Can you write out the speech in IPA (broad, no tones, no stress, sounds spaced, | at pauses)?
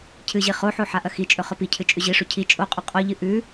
cʰ ɨ ʑ i χ o ħ o ħ a ʔ ɐ x i t͡ʃʼ ɵ χ ɵ p i cʰ ɨ t͡ʃʼ ʉ ʑ i ʂ ʉ cʰ i t͡ʃʼ o qʼ ɵ qʼ o ʎ ɨ ʔ ʉ